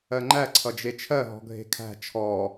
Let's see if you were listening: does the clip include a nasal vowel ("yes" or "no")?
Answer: no